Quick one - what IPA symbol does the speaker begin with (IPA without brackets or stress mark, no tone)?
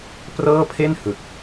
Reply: p